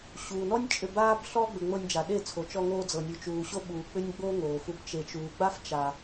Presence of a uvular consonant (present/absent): absent